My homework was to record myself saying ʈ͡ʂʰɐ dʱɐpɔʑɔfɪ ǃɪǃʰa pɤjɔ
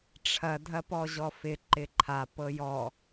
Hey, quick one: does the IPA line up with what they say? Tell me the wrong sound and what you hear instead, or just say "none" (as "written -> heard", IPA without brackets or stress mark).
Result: none